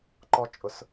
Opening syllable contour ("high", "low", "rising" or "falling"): high